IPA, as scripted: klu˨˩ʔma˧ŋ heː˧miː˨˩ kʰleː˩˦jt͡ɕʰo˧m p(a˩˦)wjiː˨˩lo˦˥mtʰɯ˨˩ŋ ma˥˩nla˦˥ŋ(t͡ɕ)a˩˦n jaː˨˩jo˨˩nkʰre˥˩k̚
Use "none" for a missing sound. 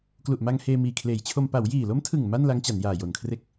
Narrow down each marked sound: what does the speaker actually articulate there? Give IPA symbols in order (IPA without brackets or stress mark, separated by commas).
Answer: a˩˦, t͡ɕ